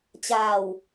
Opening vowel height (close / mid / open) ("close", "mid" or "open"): open